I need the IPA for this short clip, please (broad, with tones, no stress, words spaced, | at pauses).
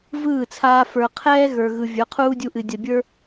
vɯː˦˨t͡sʰaː˧ fə˞˨qʰɛː˦ ɣə˞˨ɣɯ˨ vʲə˞˨˦qʰuː˦dʲu˧ʔɨ˨ dʲɜ˨bʲə˞˦